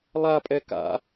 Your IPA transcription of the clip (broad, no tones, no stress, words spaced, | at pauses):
lˠapʼɛ ka̰